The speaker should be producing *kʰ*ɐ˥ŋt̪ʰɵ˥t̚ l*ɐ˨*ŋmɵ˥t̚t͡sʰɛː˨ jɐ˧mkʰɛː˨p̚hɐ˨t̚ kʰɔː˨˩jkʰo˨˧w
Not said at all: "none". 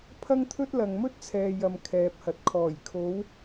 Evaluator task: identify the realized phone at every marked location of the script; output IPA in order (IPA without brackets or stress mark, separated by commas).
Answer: pʰ, ɐ˨